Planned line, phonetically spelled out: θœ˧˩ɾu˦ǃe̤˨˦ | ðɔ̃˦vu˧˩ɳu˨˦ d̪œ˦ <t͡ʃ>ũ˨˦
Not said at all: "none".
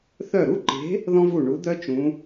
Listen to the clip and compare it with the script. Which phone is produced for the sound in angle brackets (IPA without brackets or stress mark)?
t͡ʃ